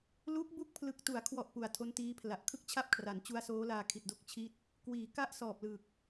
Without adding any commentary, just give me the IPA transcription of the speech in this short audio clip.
lu˦˥k̚bu˦˥k̚ pʰlɯ˨˩k̚tu˩˦a̯kʰwɔ˨˩ʔ pu˨˩a̯tʰo˦˥ntiː˦˥pʰla˨˩ʔ kʰɯ˥˩k̚t͡ɕʰa˥˩p̚kʰra˩˦n t͡ɕu˦˥a̯soː˦˥ laː˧kʰi˨˩t̚do˥˩k̚t͡ɕʰi˥˩t̚ | kwiː˩˦ ka˥˩ʔsɔː˨˩p̚lɯ˨˩k̚

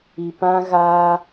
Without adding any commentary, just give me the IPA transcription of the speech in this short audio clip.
i˨ pã˦ɣaː˦

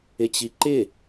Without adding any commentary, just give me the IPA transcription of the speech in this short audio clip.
ɪt͡ɕiǃɪ

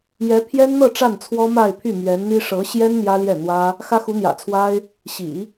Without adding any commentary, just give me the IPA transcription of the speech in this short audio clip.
jɛ˧˥pʰjɛ˥nn̪ɤ˥˧ ʈ͡ʂa˥˩nt͡sʰwɔ˥ma˥˧ɪ̯pʰy˥˩ mɥɛ˧˥nn̪i˥ ʂɤ˧˥ɕjɛ˥n n̪jä˥ljɛ˥˩n̪wä˥ | xä˥xu˧˥n̪jä̰˨˩t͡sʰwa˥ɪ̯ | ɕḭ˨˩˦

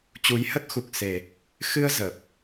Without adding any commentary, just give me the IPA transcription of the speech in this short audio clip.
t͡ɕu˨˦jhə˦˥t̚xu˨˩k̚ se˨˩ | xɨ˧ə̯ zə˨˩p̚

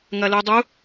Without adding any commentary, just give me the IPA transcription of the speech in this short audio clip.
ŋɐludˤu

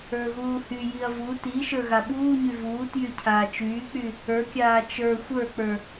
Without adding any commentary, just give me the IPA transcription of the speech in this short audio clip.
ə˞ɣuːhyjiɐ̯ vu ti ʃə˞ɣaɓuːɲy vuːtjy cʰaːt͡ʃyːk͡py | ə˞kʲaː t͡ʃə˞ xʷə˞k͡pə˞

